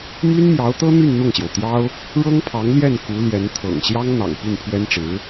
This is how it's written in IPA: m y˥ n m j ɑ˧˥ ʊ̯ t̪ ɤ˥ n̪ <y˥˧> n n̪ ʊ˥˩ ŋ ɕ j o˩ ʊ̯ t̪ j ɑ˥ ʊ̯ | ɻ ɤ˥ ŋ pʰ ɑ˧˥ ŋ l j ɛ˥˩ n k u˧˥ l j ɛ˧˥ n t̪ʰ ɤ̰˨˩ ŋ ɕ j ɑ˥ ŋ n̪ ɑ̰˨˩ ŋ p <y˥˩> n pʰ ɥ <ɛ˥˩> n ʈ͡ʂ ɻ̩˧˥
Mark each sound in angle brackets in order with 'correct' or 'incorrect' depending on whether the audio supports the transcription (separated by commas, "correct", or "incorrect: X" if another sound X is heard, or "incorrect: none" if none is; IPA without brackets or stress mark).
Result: correct, correct, incorrect: ɛ˥